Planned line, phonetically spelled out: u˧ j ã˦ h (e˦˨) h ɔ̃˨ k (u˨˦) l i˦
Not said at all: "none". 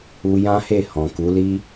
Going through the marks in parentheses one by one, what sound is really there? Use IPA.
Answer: e˦˨, u˨˦

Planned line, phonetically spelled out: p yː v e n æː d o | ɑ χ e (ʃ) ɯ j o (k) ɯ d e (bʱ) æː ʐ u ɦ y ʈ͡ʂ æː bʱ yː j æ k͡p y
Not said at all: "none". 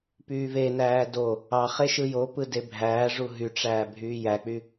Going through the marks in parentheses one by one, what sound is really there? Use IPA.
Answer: ʃ, p, bʱ

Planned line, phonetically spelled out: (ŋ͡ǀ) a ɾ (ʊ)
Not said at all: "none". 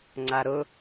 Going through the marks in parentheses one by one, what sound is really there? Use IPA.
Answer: ŋ͡ǀ, ʊ

